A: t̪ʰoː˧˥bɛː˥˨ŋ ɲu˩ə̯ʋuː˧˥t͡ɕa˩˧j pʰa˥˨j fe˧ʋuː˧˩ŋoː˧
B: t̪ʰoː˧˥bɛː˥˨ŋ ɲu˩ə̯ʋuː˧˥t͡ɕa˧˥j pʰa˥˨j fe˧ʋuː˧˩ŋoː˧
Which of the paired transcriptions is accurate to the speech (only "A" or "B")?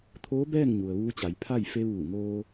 A